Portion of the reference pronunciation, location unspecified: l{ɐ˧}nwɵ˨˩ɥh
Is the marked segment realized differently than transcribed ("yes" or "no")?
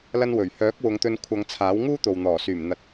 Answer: no